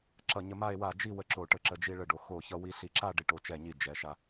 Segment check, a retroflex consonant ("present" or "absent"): present